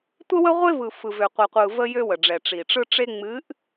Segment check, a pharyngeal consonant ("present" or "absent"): absent